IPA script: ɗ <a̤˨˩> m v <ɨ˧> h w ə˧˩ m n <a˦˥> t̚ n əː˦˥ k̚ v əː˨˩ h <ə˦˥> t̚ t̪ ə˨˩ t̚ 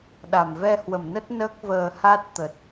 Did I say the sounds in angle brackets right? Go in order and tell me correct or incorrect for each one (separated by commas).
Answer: incorrect, incorrect, incorrect, incorrect